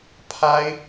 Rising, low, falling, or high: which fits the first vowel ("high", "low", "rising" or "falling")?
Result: high